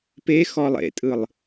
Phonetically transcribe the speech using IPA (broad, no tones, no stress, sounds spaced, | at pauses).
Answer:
p e x ɔ lˠ ḛ tʼ ɯ lˠ